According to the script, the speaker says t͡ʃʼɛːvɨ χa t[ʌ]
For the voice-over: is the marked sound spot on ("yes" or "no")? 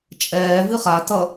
yes